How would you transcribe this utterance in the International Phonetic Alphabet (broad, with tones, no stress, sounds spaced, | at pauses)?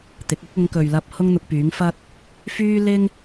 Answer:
t̪ ɪ˨˥ k̚ ʊ˥ k̚ ʊ˨˧ ŋ k ɵ˨ ɥ l ɐ˧ p̚ h ʊ˥ ŋ n̪ ʊ˧ k̚ p yː˨˥ ŋ f ɐ˥ t̚ | f yː˥ l ɪ˥ ŋ